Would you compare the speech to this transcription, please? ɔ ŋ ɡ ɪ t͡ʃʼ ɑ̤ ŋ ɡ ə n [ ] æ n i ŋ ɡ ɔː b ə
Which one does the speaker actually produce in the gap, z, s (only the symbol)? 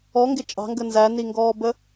z